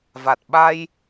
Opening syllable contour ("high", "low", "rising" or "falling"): low